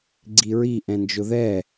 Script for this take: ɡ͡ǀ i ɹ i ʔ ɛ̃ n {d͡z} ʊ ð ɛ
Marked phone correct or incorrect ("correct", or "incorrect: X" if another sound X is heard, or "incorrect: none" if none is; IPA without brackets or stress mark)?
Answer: incorrect: d͡ʒ